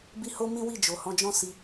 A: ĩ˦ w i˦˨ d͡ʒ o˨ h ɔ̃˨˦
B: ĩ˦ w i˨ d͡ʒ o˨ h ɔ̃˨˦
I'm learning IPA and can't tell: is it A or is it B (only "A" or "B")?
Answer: A